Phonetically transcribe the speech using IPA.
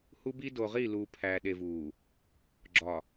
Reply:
h u˦ b i˦ d o˨ ʁ i˦˨ l uː˨ pʰ æː˨ ɗ e˨ v uː˨ | ɡ͡ǁ ɒ˨

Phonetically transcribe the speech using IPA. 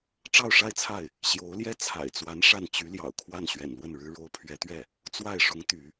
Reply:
ʈ͡ʂ ɑ˥˧ ʊ̯ ʂ a˥˧ ɪ̯ t͡sʰ a˥˩ ɪ̯ | ɕ j o˧˥ ʊ̯ l j ɛ˥˩ t͡sʰ a̰˨˩ ɪ̯ t͡s w a˧˥ n ʂ a˥˩ n t͡ɕ y˧˥ l j ɑ̰˨˩ ʊ̯ kʰ w a˥˩ n ɕ ɥ ɛ̰˨˩ n l w ə˥˩ n ɻ ɻ̩˥ ɻ o˥ ʊ̯ pʰ ɥ ɛ˧˥ t̪ ɥ ɛ˥˩ | t͡s w a˥˩ ɪ̯ ʂ ʊ˧˥ ŋ t̪ y˧˥

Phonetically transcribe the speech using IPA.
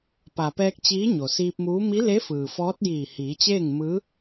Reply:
p a˩ p ɛː˧ k̚ t͡ɕ iː˧˥ ɲ o˩ s iː˧ p̚ m uː˧˥ m i˧˥ l e˧˥ f ɯː˩ f ɔː˧˥ t̚ j iː˧˩ h iː˩˧ t͡ɕ eː˥˨ ŋ m ɯː˧˥

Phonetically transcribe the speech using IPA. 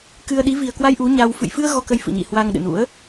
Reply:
k ɨ˧ ə̯ ɗ i˨˦ v i˨˩ ə̯ k w a˧ j ʔ u˨˦ ɲ a˧ w f ɨ̰˧˨ j f ɨ˧ ə̯ ɣ ɔ˧ k ə˧ j f ɨ̰˧˨ ɲ ḭ˧˨ h w a˧ ŋ ɗ ɨ̰˧˨ n ṵ˧˥ ə̯

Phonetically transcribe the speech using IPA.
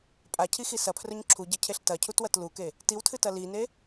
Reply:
pʼ a cʰ i x i s ɐ pʰ r ɵ ɲ ǁʰ u ɟ ɐ cʰ e ɬ t ɐ cʰ u t w ɐ t l u k e | t i w tʰ ɨ t ɐ l i n e

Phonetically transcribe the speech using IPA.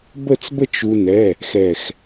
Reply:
b ə˥˨ t͡s b ə˥˨ t͡ʃ u˧ n ɛ˩˧˩ | x ɛ˧˩ x

